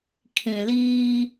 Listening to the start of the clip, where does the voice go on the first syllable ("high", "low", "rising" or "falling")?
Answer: low